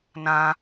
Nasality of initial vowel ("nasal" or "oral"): nasal